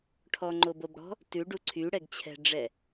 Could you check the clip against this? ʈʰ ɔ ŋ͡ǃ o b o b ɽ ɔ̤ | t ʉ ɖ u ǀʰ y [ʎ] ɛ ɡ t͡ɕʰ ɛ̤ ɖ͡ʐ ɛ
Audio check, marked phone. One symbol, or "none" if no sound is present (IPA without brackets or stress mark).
ɽ